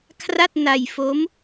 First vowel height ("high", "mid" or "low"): low